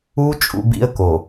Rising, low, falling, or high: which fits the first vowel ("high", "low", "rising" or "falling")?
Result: high